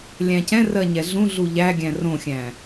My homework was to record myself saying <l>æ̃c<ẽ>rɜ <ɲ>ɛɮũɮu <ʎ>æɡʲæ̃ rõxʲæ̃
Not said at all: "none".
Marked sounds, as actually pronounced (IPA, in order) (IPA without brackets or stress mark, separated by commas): lʲ, ɛ̃, ɲ, ʎ